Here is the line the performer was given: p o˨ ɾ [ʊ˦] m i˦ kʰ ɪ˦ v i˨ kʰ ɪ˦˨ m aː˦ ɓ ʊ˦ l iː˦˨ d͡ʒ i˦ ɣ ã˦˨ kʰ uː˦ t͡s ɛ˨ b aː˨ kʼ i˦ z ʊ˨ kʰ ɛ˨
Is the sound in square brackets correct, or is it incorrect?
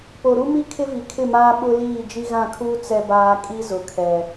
incorrect